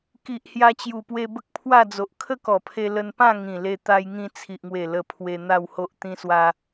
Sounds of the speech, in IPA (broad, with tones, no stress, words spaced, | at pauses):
ki˨ʔ hja˧t͡ɕju˨˩pwe˧ bə˦k̚pʰwa˥˧d͡zo˨ʔ kʰə˦kɔ˨˩pʰe˧ lə˧npã˥˧ ŋĩ˨˩le˧ t̪a˧jŋĩ˧ t͡sʰi˨ʔŋwe˨˩ lə˧pʰwe˧ n̪a˥˧who˦ʔ t̪ĩ˧swa˧